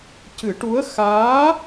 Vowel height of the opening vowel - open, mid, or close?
close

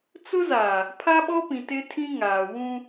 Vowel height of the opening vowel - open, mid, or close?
close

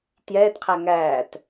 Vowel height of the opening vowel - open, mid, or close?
mid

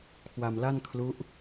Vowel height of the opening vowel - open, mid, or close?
open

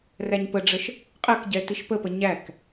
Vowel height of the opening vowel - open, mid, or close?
open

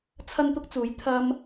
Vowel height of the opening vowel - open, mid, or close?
open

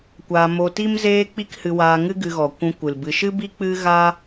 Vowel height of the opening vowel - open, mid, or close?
open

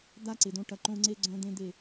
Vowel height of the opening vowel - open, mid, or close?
open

